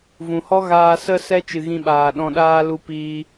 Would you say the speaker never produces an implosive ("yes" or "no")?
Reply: no